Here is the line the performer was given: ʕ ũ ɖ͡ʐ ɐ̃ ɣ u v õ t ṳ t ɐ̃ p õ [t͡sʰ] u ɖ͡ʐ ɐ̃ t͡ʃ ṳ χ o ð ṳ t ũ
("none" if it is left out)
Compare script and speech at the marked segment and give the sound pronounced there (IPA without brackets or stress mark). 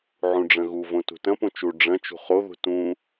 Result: t͡ʃ